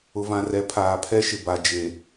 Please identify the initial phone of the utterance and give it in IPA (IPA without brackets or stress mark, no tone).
ʊ